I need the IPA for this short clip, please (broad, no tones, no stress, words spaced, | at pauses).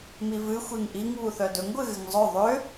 mivɨ xʷiŋʔiŋ βuθœdɵŋ ɡʷɨɣɨŋzˤœ ðˤʏ